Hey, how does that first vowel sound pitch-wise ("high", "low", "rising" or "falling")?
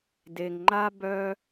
low